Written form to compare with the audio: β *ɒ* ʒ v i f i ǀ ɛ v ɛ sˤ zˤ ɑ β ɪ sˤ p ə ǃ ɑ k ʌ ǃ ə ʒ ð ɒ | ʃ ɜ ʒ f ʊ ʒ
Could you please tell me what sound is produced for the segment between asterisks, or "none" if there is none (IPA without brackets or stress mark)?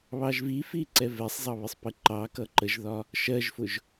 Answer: ɑ